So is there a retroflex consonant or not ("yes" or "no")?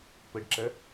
yes